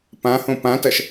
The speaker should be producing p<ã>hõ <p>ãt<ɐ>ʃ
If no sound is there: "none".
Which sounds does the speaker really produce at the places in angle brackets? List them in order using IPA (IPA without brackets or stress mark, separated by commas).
ã, p, ɐ